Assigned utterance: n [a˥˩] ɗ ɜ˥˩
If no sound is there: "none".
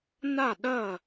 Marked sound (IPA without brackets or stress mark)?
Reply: a˥˩